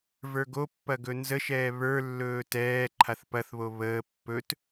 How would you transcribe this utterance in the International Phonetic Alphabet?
v ə˞ ɡ o pː ɐ ɡ ɵ n z ə ʃ ɛː β ə˞ lː ɵː t ɛː ǃʰ a θ p ɐ θ β o β əː pː ɵ t

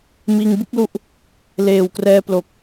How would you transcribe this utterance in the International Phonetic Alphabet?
m iː˧ ŋ b ɯ˥˩ k̚ l u˦˥ ʔ | l eː˨˩ w k r ɛː˧ p l o˨˩ k̚

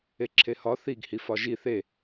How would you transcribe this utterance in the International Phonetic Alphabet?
e ǁʰ e h ɒ θ i ɡ h i f ɒ ʒ i θ e

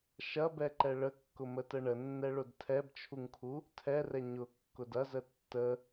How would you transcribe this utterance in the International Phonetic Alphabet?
ʃ ɐ b ɛ ǃ ɛ ɭ ə kː ʊ m ə t ə ɳ ə nː ɛ ɭ ʊ d tʰ ɛ b t͡ʃʰ u ŋ kʰ u | tʰ ɛ r ɛ ɲ ʊ kː ʊ d ɐ z ə tː ə

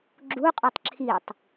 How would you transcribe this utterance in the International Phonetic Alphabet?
ɡ͡ǁ u qʼ ɵ tˤ ǁʰ i tˤ

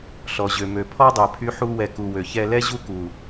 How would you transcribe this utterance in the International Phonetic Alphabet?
ɬ ɔ˨ ʑ ø˨ m ø˨ pʰ ɔ˦ dˤ ø˨ pʰ y˧ ħ u˧ w ɛ˨ k u˨ w ø˨ ç ɛ˧ l ɛ˦ ʑ u˦ k u˨

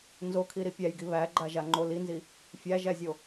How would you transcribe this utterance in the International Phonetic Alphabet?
n z o kʰ i ɾ i pʲ æ j ɡ i β æ ɡ͡ǃ a ʒ a ŋ͡ǃ o l i n z i | fʲ æ ʒ æ zʲ o

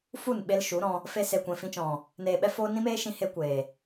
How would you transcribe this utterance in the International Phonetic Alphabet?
f u˦˨ n ɓ e˧ l ʃ u˨˦ ɾ ɔ̃˧ | f e˧ s e˨ kʷ ɛ̃˨ f ĩ˧ t͡ʃ ɔ̃˨ | n eː˨ ɓ ɛ˧ f oː˧ n ĩ˦ m eː˦ ʃ ĩ˧ h e˧ kʷ eː˨

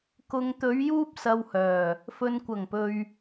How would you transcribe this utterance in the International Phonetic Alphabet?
k ʊ˨ ŋ t̪ ɵ˨˧ ɥ j uː˥ p̚ s ɐ˧ w h œː˨˩ | f ɵ˨ n kʷ ɐ˨˩ ŋ p ɵ˨ ɥ

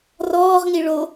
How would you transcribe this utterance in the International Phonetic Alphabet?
r ɔː ʁ ŋ i ɭ o

